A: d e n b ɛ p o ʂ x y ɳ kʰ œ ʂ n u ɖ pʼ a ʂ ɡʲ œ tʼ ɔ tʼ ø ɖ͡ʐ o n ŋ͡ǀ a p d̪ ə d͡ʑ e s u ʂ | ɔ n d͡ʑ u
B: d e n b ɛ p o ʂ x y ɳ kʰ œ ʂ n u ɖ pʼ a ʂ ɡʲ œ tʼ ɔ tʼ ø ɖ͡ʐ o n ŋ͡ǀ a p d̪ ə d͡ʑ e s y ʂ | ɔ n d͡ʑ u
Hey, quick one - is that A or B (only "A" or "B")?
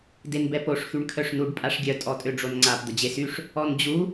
B